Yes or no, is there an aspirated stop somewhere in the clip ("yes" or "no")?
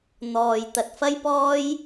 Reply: no